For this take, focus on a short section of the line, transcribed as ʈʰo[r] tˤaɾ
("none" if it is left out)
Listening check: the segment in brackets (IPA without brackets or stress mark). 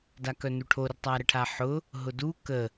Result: r